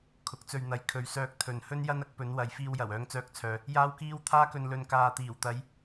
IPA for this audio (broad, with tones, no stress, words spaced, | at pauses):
kʰʊ˨˥k̚t͡sɵ˧ɥn̪ɐ˨˧j kʰɵ˨ɥsœː˧k̚ t̪ʰɵ˨nhɵ˥n jɐ˥nɐ˨˥k̚pɵ˨˧n wɐ˨jfiː˧wjɐ˨˩w œː˧ŋt͡sœː˧k̚t͡sʰœː˨ | jaː˥wkiː˥w t̪ʰaː˥kɵ˧nlɵ˧n kaː˧ t̪iː˨˩wt̪ɐ˨˧j